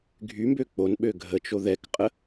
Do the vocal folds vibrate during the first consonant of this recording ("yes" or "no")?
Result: yes